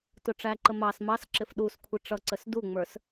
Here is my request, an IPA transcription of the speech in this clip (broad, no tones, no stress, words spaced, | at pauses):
tʊʈ͡ʂæǃə mɑs mɑsǁɪf ɗuskʷʰɪ ʈ͡ʂʌǀəs duŋ͡mə˞s